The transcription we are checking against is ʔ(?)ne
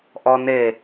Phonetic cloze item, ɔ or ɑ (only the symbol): ɔ